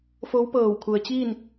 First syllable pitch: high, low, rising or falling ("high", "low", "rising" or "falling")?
rising